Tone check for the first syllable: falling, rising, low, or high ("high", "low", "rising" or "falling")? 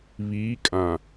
rising